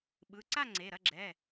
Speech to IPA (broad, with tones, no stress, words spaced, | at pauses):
ɓɯ˩˧˩ǀa˥˨ ŋ͡ǀe˩˧˩ɾɐ˥˨ɡ͡ǁɛ˩˧˩